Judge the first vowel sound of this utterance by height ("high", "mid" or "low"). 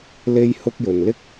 mid